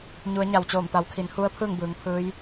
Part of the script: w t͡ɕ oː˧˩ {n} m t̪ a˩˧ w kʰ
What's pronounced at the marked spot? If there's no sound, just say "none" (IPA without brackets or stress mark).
none